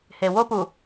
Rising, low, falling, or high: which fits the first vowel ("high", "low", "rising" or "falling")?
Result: low